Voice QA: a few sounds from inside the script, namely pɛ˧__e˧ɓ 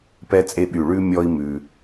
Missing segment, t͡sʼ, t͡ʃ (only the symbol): t͡sʼ